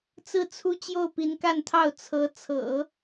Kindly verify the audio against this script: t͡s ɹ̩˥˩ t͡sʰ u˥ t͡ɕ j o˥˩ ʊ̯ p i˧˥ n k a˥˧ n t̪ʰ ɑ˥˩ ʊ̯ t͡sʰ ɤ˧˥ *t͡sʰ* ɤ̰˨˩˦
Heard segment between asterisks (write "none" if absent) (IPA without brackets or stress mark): t͡sʰ